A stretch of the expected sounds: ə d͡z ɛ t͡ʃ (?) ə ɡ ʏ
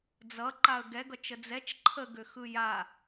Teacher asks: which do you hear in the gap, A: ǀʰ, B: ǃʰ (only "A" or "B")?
B